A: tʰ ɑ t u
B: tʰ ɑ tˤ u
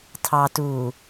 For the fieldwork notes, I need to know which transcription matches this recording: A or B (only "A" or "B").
A